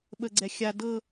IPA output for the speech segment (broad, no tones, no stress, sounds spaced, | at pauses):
ɓ ə ɡ͡ǀ ɛ xʲ a d ɤ